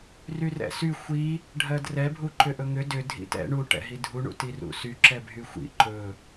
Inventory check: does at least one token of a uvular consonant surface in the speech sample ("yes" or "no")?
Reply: no